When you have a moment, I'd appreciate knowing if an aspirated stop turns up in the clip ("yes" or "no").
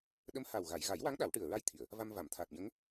yes